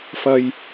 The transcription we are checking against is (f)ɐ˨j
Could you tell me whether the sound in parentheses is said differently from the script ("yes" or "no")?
no